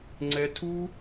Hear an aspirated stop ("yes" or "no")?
yes